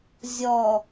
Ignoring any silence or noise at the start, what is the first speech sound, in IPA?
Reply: zʲ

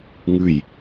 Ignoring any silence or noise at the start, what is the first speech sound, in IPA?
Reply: ŋ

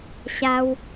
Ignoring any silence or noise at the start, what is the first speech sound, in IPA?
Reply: ɕ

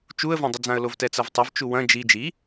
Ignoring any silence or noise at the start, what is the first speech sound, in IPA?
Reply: t͡ʃ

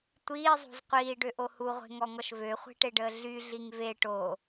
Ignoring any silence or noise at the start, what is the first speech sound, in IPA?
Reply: tʷ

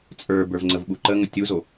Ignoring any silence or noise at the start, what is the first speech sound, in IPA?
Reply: t͡sʼ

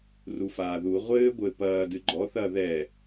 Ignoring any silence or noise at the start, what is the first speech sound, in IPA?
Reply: r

